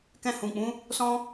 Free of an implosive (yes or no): yes